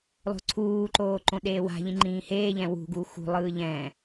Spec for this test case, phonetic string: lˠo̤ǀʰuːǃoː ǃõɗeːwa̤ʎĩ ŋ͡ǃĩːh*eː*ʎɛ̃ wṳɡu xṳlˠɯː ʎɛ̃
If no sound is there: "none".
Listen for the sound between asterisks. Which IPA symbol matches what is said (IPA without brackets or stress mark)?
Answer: eː